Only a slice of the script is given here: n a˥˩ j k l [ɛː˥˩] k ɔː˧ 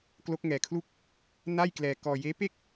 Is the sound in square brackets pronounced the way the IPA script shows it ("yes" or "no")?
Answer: no